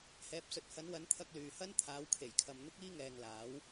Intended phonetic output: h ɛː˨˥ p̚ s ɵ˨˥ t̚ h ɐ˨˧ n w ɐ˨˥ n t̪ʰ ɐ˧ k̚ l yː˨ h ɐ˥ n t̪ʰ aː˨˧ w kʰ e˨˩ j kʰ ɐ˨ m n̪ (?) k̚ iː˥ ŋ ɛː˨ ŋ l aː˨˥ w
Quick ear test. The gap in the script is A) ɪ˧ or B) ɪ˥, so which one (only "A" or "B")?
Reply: B